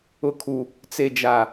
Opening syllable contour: low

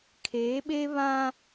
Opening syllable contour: rising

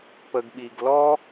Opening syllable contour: low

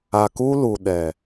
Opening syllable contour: low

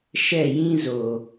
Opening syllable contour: falling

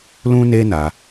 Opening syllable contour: high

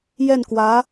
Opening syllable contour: falling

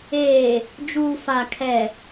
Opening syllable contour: low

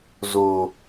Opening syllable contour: low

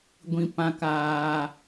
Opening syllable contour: low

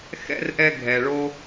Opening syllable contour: high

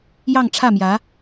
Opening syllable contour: falling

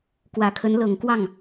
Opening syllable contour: low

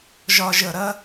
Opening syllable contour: low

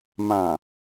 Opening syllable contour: low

